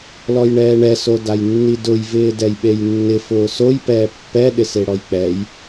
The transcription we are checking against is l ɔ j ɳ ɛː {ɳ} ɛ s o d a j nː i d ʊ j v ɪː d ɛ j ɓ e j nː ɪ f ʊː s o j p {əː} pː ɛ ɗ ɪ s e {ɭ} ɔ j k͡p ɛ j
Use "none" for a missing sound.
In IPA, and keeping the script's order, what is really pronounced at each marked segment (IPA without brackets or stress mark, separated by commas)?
ɳ, ɛː, ɽ